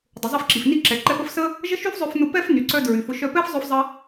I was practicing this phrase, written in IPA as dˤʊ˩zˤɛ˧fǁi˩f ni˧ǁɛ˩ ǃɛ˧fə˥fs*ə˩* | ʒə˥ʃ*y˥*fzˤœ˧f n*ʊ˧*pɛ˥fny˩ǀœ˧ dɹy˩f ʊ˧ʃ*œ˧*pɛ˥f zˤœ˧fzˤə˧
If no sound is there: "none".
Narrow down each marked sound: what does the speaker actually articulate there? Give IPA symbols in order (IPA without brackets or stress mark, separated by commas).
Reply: ə˥, y˥, ʊ˧, œ˧